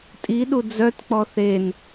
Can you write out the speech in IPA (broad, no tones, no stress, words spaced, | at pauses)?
tʼiɗu d͡zœtk͡pɔ θen